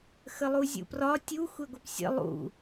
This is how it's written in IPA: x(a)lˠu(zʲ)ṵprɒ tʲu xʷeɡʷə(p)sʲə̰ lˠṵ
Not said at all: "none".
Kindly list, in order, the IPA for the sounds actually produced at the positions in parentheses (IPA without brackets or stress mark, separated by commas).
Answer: ə, zʲ, p